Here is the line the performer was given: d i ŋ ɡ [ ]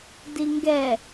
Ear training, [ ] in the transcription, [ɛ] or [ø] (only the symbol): ɛ